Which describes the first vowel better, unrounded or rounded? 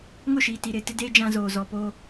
rounded